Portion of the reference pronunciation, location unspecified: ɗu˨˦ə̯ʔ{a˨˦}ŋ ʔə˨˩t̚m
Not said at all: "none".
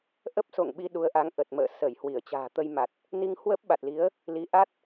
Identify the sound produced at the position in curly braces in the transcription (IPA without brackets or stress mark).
a˨˦